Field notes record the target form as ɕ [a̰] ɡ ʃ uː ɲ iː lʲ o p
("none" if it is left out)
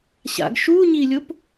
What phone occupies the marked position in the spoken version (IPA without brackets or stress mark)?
a̰